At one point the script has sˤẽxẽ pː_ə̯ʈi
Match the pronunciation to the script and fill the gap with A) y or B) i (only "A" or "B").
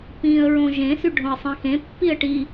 B